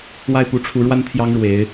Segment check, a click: absent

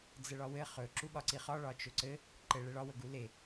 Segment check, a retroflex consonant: present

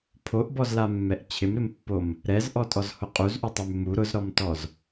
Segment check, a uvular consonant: present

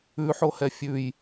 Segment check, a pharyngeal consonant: present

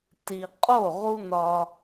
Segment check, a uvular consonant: present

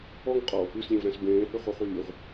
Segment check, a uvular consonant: present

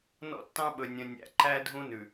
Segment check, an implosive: present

